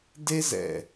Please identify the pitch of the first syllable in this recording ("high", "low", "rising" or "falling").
high